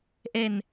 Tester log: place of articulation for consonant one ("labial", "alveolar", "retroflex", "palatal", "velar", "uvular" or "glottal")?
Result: glottal